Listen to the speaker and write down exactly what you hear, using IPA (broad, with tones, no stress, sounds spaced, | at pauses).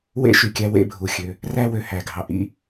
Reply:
w ḛ˦ ʃ y˨ kʲ æ˦ w ḛ˦ bʱ u˨ xʲ ø˨˦ | r æ˦ w ø˨ h æ˨ ɡʱ ɑ˨ ʔ ḭ˦˨